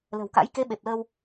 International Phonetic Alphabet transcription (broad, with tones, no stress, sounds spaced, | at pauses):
l ə̤˨˩ w k a̰˧˥ j k e˨˦ ɓ e˨˩ p̚ l əː˧ w